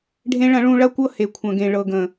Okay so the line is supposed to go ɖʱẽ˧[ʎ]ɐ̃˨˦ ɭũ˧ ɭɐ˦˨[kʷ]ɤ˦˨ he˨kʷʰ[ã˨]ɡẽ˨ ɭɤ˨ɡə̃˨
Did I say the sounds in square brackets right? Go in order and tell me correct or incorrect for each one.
incorrect, correct, incorrect

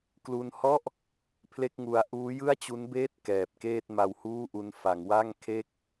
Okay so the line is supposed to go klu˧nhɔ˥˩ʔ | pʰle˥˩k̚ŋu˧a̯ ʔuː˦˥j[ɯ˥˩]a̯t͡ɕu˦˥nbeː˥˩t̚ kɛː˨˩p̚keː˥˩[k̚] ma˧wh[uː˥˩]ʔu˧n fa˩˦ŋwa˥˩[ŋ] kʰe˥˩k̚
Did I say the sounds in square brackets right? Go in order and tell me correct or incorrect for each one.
correct, incorrect, correct, correct

